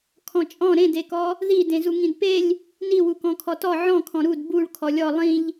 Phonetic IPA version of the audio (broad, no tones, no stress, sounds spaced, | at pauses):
kʰ ɔ̃ t͡ʃʼ ɔ̃ ɾ ẽ d e k ɔ | ð i d ẽ z u ŋ ĩ d p e lʲ | n i w u k ɔ̃ kʰ ɔ t ɔ ʕ ɔ̃ kʰ ɔ̃ ɾ u d b u ɭ kʰ ɔ lʲ ɔ lˠ ĩ ʎ